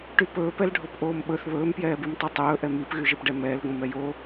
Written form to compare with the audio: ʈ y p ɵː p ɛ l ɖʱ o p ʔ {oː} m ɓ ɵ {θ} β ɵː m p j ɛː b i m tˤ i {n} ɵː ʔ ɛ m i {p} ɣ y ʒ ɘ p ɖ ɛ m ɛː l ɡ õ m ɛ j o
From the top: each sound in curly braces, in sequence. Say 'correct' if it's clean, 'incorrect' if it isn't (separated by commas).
correct, correct, incorrect, correct